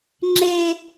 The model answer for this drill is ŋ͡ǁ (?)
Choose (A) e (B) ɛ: A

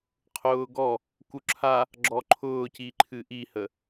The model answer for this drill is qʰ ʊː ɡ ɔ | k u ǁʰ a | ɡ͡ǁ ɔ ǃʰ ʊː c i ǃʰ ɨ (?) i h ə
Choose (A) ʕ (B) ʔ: B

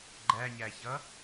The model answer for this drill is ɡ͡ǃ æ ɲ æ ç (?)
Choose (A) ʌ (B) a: A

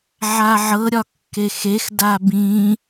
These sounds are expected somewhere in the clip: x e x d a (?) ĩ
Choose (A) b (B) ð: A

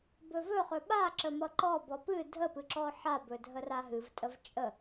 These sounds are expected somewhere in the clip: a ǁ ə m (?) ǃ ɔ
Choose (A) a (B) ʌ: B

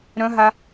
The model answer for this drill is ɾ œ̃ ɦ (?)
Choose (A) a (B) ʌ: A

